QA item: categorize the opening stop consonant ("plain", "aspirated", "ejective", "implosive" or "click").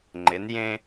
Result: click